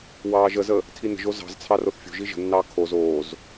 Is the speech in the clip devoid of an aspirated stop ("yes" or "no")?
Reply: no